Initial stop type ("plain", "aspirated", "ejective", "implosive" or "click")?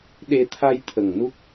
implosive